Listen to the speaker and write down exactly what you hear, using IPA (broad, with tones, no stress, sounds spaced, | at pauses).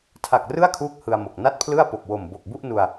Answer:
tʰ a˨˩ k̚ r ɯ˥˩ a̯ kʰ uː˦˥ k̚ h ɯ˧ a̯ m o˨˩ k̚ n a˥˩ t̚ pʰ l ɯ˥˩ a̯ p o˨˩ k̚ w o˨˩ m b o˨˩ k̚ b u˥˩ ʔ n u˧ a̯